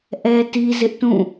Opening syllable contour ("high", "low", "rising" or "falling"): high